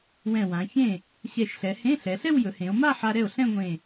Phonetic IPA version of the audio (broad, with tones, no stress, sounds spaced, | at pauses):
w ɛ̃˧˩ w ã˩˧ ç ẽ˥˩ | ɕ ɛ˧˩ ʃ ɬ ɛ˩˧ h ẽ˧˥˧ ɬ ɛ˩˧ ɬ ɛ˥˧ w j ɵ˩˧ h ẽ˩˧ o̯ m a˥˧ ħ a˧ ɾ ɛ˥˩ o̯ ɬ ɛ̃˥˧ ŋʷ ẽ˧˩